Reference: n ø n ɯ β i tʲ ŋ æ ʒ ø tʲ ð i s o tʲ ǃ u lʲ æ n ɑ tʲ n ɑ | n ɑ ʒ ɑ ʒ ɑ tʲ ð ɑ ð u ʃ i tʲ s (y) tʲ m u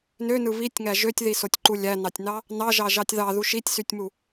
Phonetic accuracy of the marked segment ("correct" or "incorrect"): correct